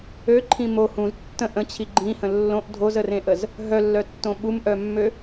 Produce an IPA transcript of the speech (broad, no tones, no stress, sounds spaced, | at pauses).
ø ǃʰ ĩ m o h ũ z tː ə̃ ʔ ə̃ t͡ɕʰ i ɡ͡ǃ ĩ h ə̃ lː õ ʔ dʱ o z ə r ẽ ʔ ə z | ɦ œ lː œ tː õ ɓ u m ʔ œ mː ø